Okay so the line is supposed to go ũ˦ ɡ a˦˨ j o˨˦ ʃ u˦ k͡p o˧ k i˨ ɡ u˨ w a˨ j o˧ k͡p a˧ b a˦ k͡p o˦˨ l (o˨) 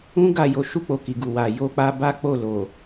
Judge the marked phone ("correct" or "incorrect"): correct